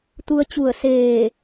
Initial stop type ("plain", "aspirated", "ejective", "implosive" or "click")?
plain